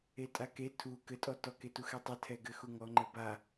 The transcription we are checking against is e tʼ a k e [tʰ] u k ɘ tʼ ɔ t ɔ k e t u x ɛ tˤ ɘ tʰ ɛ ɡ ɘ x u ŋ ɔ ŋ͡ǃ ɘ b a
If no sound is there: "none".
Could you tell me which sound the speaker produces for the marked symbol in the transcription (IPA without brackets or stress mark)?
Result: tʰ